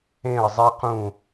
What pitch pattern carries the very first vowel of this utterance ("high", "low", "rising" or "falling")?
falling